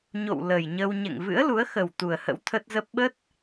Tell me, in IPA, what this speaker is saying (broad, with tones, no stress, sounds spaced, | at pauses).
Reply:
ɲ o̰˧˨ w l ə˨˩ j ɲ ə˧ w ɲ ɛ̰˧˨ ŋ v ɨ̰˧˥ ə̯ l u˨˦ ə̯ x ə˨˩ w t̪ u˨˩ ə̯ h ə̰˧˥ w t̪ʰ ə˦˥ t̚ z ə˦˥ p̚ ɓ ə˦˥ t̚